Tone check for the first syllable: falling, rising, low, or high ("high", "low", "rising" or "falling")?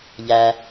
low